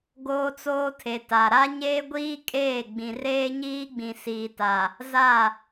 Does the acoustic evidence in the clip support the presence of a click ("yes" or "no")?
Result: no